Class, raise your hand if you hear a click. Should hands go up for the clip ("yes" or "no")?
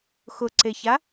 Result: yes